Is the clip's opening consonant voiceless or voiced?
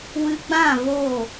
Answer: voiced